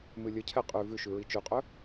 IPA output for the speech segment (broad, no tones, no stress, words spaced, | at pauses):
mɨlʲəcʰɛ qʼʉ vʉʃʉ ɹit͡ʃʉqʼɵ